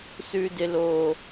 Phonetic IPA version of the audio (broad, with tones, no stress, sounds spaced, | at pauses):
s ʉ˨ d ɪ˨ l o˨